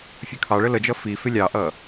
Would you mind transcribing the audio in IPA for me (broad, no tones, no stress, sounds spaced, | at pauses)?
fʲ ə kʰ ɑ ɭ ə l ə d͡ʒ ʌ f i f ɪ lʲ ɑ ʔ ʌ